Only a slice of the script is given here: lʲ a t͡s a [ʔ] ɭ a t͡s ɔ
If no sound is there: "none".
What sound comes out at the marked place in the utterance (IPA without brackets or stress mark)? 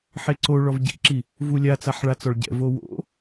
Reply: ħ